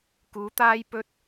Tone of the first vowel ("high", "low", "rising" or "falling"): rising